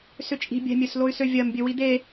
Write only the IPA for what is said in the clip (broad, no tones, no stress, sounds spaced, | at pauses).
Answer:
s ʏ t͡ʃʼ i̤ bʲ ɛ̤ mʲ ø s l o y̯ s ø vʲ ɜ m bʲ ø w i d̪ e